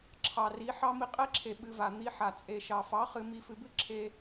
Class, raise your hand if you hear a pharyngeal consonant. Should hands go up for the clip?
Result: yes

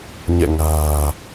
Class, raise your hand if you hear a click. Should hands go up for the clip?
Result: no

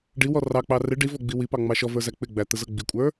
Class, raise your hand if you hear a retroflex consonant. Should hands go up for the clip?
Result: yes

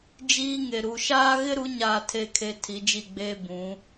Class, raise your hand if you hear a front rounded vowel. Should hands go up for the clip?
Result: no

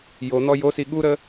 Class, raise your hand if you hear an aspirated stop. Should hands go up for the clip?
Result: no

